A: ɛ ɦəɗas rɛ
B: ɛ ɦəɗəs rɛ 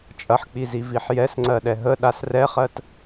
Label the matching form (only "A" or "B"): A